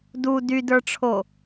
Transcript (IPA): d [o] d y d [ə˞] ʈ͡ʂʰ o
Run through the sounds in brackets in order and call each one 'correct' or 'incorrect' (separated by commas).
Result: incorrect, correct